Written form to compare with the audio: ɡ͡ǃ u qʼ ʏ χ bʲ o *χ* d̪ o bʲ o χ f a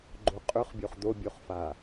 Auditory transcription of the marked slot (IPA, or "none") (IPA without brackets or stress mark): χ